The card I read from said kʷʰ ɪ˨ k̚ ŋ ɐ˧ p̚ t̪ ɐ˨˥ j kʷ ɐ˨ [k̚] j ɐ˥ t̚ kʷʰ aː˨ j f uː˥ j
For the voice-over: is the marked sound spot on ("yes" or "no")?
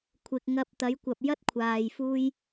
no